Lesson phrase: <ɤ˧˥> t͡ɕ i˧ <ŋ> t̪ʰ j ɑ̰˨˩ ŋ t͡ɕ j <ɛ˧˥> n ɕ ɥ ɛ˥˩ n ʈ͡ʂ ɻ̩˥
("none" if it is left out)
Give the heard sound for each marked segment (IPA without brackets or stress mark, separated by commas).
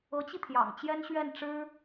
ɤ˧˥, none, ɛ˥